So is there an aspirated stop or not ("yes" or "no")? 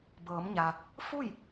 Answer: no